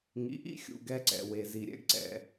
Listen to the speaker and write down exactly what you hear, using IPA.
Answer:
ŋ ḭ˨ ʔ ḭ˦ xʲ ṵ˨ ɡ ɛ˧ ǀ ɛ̰˨ w e˨ z i˨ ɾʲ ɛ̰˧ ɡ ǀ ɛ̰˨

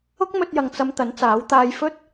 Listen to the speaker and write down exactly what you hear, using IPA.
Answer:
ʊ˥ k̚ m ɵ˧ t̚ j ɐ˨ ŋ t͡s ɐ˧ m t̪ ɐ˨˥ n t͡s aː˨˥ w t̪ aː˧ j f ɵ˥ t̚

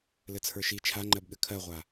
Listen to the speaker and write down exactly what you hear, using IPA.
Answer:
l ɘ t͡sʰ ə˞ ʃ i t͡ʃʰ a ŋ͡ǃ ɜ b ɠ ɘ kʰ ɜ ʁʷ a

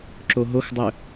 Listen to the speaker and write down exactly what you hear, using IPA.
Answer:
ǁ o ɦ o x dˤ ɵ

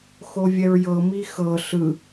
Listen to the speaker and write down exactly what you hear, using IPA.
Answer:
x o vʲ ɛ ɹ j ɤ m i x ɤ ɬ ɯ

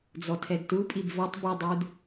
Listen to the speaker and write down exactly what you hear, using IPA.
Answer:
d͡z ɔ tʰ ɛ d t u pʼ i b v ɐ tˤ b i dˤ u d

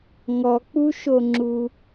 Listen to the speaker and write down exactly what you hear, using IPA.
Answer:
ŋ ɔ k͡p u ʃ o ŋ͡ǁ u

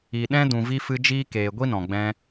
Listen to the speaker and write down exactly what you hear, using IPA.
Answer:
i˨ ɗ ɛ̃˦ d ũ˨ v i˧ f ɨ˧ d͡ʒ iː˦ k eː˨ ɡʷ i˦ n ɔ̃˨ ɡ͡b ɛ̃˧

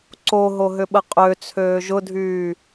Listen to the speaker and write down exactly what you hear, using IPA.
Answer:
ǀ o ɦ o ɦ ʏ ɓ ə qʼ ø t͡sʰ øː ʒ ʊ dʱ yː

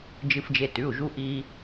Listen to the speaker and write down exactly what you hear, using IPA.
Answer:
d͡ʒ ɨ˧ f d͡ʒ e˧ t ʉ˩˧˩ u̯ ʒ u˧ ʔ i˧

